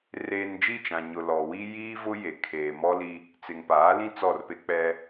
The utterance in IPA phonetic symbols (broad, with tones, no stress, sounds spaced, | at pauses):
r eː˨ n d͡ʒ i˦˨ t͡ʃ ã˨ ɲ ʊ˨ l ɔ˨ w i˦ j i˦ v ʊ˦ j e˨ kʰ eː˨ m ɔ˦ l i˦ | t͡s ɪ˨ ŋ p aː˨˦ l ĩ˦ t͡s ɔ˦˨ r p e˦ k͡p ɛ˦